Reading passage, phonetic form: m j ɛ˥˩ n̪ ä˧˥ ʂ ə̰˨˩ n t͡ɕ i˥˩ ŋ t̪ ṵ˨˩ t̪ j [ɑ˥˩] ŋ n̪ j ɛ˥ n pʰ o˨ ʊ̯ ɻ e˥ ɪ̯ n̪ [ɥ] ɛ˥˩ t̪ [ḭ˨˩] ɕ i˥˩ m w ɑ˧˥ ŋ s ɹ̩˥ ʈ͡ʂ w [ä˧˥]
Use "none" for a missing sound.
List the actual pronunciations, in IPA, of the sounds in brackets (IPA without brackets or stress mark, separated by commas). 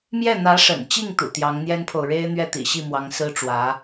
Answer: ɑ˧˥, ɥ, ḭ˨˩, ä˧˥